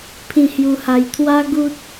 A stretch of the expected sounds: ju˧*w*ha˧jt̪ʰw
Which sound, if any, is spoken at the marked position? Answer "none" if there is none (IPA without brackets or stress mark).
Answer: none